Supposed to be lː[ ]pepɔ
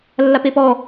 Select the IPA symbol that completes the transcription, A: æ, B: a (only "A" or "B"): B